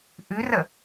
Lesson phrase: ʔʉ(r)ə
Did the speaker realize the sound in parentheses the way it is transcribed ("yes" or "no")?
yes